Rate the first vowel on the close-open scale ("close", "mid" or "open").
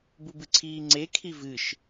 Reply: close